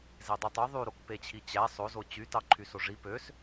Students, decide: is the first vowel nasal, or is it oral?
oral